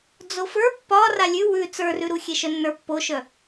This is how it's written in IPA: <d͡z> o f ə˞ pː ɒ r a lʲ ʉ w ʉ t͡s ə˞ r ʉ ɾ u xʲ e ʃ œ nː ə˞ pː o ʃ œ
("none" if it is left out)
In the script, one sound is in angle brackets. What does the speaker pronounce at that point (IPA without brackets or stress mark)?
d͡z